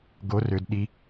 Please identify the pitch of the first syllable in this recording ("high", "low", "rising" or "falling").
rising